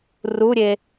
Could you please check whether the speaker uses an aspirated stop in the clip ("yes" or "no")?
no